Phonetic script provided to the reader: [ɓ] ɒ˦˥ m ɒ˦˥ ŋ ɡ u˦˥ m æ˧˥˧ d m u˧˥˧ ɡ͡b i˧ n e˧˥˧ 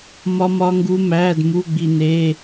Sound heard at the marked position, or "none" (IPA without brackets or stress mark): m